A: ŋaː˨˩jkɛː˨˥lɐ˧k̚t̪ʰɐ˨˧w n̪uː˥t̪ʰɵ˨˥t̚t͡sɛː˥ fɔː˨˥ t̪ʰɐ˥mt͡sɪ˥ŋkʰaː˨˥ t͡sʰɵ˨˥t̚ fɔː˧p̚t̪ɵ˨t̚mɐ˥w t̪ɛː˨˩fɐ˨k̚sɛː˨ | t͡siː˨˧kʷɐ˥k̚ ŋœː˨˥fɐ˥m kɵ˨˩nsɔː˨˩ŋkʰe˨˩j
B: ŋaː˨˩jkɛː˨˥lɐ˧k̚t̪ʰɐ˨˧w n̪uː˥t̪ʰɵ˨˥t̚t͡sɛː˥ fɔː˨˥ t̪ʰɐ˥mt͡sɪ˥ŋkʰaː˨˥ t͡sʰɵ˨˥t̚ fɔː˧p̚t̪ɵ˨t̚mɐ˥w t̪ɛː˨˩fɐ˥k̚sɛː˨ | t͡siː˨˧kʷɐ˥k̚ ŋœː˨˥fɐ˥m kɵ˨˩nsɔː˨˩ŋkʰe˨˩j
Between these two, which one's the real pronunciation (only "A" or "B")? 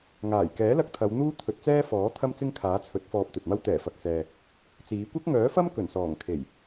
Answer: A